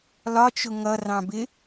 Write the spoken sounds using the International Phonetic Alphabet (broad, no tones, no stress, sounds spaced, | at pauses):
l ɒ t͡ʃ ʊ ŋ ʌ r ɑ̃ b ɪ